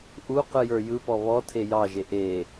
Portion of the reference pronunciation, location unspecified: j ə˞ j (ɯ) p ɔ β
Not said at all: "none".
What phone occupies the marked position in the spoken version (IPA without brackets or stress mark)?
ɯ